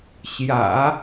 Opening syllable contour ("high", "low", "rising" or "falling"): low